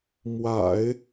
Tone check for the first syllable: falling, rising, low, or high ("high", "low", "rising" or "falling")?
low